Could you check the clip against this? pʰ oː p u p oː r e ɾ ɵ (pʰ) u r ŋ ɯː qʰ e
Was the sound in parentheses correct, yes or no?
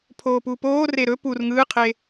no